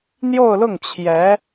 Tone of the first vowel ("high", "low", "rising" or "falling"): falling